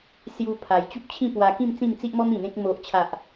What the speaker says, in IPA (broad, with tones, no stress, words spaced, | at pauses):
sju˧ pʰa˧j t͡ɕu˦p̚t͡ɕʰĩ˥˧pwa˧ kĩ˥˧m t͡sĩ˥˧mt͡si˦ʔmɔ˦m ĩ˨˩n̪ẽ˦k̚ mo˨ʔt͡ɕʰa˨ʔ